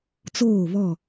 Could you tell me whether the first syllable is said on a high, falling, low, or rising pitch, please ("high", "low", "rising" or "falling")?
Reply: falling